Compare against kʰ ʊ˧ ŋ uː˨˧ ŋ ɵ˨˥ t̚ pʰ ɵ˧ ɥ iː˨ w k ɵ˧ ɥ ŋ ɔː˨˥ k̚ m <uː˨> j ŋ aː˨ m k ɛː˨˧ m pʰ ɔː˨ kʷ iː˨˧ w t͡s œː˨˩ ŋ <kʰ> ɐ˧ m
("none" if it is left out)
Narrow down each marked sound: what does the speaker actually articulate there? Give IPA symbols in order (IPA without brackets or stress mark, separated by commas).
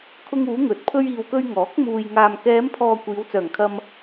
uː˨, kʰ